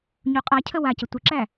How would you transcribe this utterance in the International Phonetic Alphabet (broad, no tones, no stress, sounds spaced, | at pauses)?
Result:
ɲ u qʼ a cʰ ə w a c ə tʷ ɪ ǁ æ